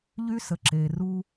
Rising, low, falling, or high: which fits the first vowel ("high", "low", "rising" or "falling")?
high